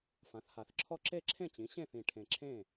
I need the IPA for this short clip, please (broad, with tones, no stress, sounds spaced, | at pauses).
f ã˩˥ θ h a˨˩ θ ǁʰ ɔ˥ ǁ e˥˨ ǁʰ ẽ˥˨ t͡ɕ ĩ˩˥ ɕ ẽ˥˨ θ ĩ˨˩ ʈʰ ẽ˨˩ ǁʰ ẽ˥˨